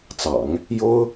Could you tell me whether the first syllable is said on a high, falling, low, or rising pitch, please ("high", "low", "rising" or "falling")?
low